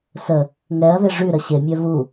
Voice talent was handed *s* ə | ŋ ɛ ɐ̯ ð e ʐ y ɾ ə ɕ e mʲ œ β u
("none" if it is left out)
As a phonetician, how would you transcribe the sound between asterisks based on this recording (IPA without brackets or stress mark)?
s